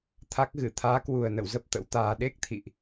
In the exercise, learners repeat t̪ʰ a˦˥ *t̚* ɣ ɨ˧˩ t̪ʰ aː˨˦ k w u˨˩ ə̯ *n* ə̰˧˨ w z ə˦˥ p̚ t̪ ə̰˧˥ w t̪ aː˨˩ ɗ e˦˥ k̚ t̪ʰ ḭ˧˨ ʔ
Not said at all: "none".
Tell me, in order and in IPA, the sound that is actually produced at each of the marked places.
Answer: k̚, n

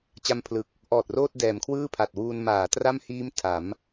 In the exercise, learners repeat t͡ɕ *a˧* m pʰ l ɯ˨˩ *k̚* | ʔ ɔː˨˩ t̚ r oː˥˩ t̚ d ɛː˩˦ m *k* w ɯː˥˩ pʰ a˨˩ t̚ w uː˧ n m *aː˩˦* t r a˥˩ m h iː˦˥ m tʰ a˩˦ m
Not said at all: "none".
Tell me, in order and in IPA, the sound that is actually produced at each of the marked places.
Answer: a˧, k̚, kʰ, aː˩˦

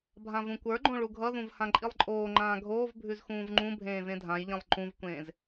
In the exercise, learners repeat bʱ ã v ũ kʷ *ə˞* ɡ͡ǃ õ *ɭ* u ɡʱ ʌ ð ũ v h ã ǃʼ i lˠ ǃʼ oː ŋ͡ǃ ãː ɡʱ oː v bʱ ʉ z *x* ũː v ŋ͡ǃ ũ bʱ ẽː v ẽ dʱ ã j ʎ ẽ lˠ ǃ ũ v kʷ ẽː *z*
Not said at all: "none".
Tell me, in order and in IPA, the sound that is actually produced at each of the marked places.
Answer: ə˞, ɭ, x, z

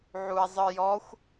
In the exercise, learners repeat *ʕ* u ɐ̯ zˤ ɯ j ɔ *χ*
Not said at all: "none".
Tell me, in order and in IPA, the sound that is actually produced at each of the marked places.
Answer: ʕ, xʷ

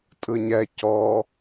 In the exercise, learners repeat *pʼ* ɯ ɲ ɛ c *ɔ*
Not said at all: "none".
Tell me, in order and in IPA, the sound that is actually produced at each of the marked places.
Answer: tʼ, ɔ

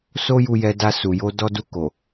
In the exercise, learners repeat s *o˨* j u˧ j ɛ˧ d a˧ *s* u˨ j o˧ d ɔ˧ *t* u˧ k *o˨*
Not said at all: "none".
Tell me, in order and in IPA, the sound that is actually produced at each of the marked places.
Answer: o˦, s, d, o˨

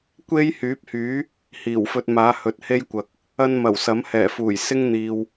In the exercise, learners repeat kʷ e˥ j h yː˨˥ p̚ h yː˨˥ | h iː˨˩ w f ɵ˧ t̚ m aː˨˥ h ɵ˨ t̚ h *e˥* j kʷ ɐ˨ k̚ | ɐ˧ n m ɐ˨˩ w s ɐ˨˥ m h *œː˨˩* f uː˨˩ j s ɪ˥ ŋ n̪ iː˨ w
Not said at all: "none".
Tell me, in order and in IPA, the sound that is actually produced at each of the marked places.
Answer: e˥, ɛː˨˩

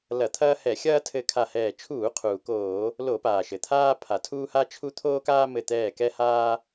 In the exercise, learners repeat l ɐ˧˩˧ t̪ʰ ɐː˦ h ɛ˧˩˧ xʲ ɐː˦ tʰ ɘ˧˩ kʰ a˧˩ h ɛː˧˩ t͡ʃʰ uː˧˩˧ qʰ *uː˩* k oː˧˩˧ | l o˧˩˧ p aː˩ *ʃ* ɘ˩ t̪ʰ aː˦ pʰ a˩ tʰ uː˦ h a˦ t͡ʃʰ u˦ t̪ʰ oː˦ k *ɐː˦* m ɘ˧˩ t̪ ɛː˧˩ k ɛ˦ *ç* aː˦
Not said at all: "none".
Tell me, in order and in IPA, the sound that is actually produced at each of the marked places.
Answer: uː˩, ʃ, aː˦, h

